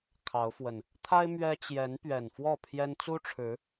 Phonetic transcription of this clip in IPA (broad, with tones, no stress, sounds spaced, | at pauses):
kʰ ɑ˨˦ ʊ̯ f w ə˨˩ n | t̪ʰ a˦ ɪ̯ m ɥ ɛ˦ t͡ɕ j ɛ˨˦ n p ɥ ɛ˨˩ n f w ɔ˥˨ pʰ j ɛ˦ n t͡s u˦ ʈ͡ʂʰ ɻ̩˨˦